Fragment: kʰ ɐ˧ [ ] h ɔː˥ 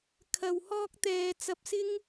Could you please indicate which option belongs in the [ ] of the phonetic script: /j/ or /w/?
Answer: w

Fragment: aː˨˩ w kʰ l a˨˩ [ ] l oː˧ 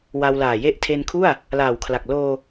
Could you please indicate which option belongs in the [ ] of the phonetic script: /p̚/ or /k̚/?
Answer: k̚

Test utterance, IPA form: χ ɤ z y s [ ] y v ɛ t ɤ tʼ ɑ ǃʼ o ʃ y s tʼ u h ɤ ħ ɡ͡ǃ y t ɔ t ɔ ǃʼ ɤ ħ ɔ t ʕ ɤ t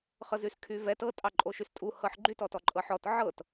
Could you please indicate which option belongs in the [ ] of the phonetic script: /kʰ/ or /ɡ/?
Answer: kʰ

